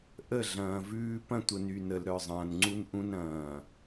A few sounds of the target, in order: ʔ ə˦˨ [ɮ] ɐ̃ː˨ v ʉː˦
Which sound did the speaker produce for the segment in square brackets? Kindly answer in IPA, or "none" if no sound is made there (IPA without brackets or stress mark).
ɮ